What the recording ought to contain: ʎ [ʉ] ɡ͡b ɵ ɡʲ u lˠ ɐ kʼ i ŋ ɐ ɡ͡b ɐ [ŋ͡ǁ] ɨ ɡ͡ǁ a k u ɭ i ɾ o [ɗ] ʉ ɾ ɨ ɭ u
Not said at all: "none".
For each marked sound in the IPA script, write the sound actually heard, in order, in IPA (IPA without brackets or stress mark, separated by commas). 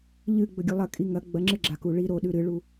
ɨ, ŋ͡ǁ, ɗ